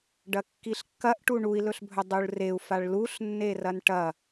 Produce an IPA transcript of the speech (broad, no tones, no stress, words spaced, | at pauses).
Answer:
ɖɐkːiɬkːɐʔ ʈuɳui̯lɵɬbʱɵ dˤuɭreu̯ faɭluɬnːe rɐnʈɐ